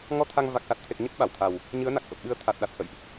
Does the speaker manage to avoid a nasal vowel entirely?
yes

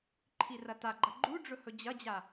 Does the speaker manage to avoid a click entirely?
no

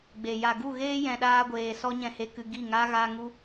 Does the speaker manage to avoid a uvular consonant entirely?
yes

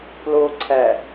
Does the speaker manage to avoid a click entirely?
no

